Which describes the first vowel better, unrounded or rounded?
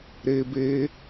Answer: unrounded